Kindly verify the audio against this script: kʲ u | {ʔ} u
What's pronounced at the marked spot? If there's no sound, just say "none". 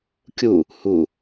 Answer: h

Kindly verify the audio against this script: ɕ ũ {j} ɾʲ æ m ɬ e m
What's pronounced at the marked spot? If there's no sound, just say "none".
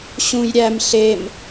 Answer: j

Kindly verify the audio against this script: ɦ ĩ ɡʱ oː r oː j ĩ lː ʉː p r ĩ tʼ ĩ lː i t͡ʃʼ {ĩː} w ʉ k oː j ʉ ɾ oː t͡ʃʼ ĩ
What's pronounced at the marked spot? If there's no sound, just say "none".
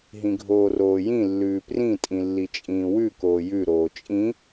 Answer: ĩː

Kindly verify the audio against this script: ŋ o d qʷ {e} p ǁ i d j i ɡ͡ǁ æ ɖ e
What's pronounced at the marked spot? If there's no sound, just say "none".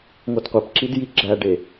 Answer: e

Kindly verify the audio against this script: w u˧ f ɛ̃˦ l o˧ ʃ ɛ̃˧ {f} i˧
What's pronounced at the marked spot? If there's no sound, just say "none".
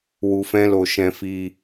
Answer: f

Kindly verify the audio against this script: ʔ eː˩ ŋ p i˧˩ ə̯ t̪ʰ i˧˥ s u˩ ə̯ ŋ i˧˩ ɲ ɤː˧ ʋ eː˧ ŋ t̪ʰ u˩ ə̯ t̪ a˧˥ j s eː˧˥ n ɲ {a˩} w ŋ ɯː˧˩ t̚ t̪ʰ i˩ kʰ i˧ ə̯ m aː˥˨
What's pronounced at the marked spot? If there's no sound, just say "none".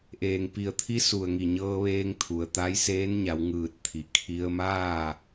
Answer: a˩˧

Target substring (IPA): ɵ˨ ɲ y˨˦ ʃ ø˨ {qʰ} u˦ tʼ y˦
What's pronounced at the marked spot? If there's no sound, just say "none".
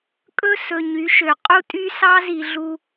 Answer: qʼ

